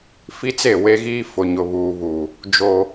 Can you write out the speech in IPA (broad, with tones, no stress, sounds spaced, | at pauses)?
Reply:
f i˦ t͡s e˦˨ w e˦ ɣ iː˦ f ʊ˨ ɲ ʊ˨ β uː˨ β uː˨ | d͡ʒ oː˦